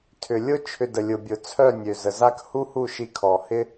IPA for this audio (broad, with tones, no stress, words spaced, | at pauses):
tʰʏ˨lʲʊ˦ t͡ʃʰʏ˧də˨lʲʊ˨bʲʊ˨ t͡sʰœ˦˨nʲø˨ zə˨za˦k hu˦hu˦˨ʃi˧ kʰɔ˨hɪ˦